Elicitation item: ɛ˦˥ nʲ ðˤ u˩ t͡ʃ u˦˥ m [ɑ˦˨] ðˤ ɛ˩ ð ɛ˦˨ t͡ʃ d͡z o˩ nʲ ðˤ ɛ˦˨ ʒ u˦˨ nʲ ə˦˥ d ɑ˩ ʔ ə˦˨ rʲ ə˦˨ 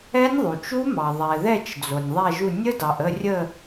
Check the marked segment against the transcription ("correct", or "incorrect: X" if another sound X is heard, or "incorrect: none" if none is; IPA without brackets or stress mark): incorrect: ɑ˩